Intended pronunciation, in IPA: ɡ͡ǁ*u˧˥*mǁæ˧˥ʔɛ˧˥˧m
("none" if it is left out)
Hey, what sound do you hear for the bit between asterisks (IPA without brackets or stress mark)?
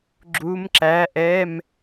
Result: u˧˥